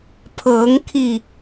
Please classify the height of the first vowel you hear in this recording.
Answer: mid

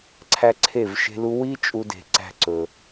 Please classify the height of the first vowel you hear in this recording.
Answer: low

